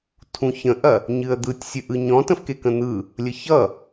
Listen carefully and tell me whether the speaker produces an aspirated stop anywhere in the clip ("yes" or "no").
yes